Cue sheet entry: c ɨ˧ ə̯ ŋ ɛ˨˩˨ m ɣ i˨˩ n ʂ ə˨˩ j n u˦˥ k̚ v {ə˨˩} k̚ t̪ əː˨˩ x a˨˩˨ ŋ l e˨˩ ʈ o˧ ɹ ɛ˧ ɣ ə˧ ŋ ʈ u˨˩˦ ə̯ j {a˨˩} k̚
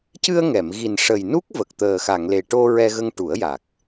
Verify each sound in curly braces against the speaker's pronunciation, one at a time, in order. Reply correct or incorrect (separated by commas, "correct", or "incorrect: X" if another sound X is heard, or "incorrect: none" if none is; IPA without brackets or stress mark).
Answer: correct, correct